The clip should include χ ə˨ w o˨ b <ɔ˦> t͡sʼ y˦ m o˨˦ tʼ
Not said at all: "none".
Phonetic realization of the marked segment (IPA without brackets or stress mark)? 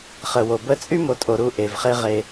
ə˦